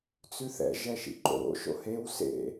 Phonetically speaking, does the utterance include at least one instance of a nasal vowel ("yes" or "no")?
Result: no